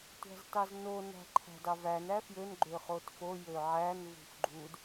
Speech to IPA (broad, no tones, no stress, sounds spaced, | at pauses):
tʷ æ̤ z t ɑ z n o n æ̤ ǃʰ æ̤ d ɑ v æ n æ f j ø n ɡ͡ǃ ø χ o t f o j ø ʕ æ n v ṳ f ɡ͡ǃ u d